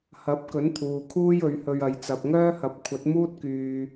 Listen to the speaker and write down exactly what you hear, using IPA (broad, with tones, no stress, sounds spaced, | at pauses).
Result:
h ɐ˨˥ p̚ k ɵ˨˥ n t̪ʰ uː˨ kʰ uː˥ j ɵ˨˥ ɥ h ɵ˧ ɥ ɐ˨˧ j t͡s ɐ˨ p̚ ŋ œː˥ h ɐ˨˥ p̚ kʷʰ ɐ˨˥ t̚ m uː˥ t̚ k yː˨